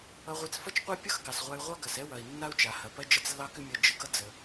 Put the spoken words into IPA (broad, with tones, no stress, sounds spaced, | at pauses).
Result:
ʌ˧ ʁʷ e˧ t͡s f ʌ˥ t͡ʃ qʷ a˥ pʲ ʌ˥ x ɡ ɑ˩ s ʁʷ a˧ y̯ ʁʷ ɑ˥ ɡ ɐ˩ s ɛ˥ w ɐ˩ i̯ nː a˥ u̯ t͡ʃ a˩ h ɐ˩ p ɐ˥ d͡ʒ ɐ˥ t͡s lː ɑ˥ k ʏ˥ mʲ ʌ˧ d͡ʒ ə˧ ɡ ʌ˥ d͡z ə˩